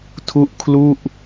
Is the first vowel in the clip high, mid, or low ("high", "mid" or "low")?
high